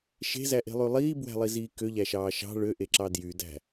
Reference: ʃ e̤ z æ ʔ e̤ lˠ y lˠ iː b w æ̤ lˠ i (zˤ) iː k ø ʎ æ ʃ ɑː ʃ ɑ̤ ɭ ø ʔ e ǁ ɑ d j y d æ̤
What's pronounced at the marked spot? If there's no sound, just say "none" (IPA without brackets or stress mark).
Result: z